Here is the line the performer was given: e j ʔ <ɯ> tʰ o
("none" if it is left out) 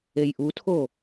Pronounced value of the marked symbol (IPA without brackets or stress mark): u